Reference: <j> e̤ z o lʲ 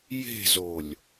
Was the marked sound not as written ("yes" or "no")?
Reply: no